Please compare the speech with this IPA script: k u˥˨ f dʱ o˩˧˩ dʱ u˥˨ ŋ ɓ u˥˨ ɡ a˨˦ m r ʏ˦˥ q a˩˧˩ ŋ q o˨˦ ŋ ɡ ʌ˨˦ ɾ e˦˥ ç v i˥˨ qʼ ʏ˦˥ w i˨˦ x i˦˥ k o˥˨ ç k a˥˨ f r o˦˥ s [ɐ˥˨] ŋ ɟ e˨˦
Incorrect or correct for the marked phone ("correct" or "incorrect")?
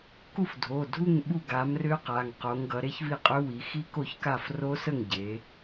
incorrect